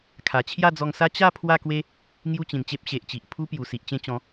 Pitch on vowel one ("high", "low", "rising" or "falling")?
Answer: low